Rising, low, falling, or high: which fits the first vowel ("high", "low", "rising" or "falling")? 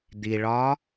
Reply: low